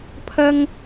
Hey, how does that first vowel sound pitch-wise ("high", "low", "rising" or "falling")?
high